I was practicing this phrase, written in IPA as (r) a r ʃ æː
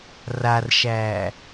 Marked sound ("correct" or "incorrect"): correct